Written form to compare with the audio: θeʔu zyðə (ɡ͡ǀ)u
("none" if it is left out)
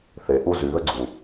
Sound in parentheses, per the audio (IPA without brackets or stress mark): ɡ͡ǀ